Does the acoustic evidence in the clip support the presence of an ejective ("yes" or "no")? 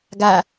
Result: no